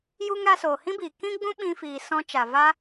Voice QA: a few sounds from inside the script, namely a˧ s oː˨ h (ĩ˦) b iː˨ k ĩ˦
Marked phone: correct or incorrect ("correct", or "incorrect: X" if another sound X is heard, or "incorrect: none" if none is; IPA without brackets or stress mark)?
correct